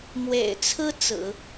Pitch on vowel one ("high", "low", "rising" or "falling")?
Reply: low